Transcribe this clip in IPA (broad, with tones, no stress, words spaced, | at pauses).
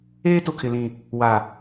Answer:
eː˦tʊ˨kʰɪ˨lĩ˨ | wa˨